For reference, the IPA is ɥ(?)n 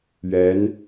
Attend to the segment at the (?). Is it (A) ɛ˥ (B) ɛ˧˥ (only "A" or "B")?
B